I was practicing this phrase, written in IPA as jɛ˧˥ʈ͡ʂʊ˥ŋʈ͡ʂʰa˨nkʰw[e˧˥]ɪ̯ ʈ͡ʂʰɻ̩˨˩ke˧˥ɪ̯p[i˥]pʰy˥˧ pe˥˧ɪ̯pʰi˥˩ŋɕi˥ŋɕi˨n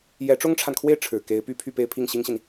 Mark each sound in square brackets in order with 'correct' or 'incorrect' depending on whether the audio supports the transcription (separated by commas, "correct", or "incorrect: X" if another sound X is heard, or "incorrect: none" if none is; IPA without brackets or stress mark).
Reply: incorrect: e˥˩, incorrect: y˥